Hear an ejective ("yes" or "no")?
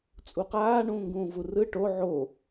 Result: yes